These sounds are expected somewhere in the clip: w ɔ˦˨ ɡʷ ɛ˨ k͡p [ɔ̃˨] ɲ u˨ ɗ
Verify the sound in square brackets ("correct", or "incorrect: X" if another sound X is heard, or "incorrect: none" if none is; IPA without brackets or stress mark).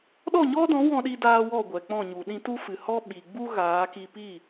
incorrect: ɔ̃˦˨